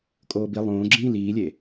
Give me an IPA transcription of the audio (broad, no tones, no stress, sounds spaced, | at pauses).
kʼ oː b i lˠ õː ɡ͡ǁ ĩː l iː lʲ e